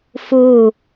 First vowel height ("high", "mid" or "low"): high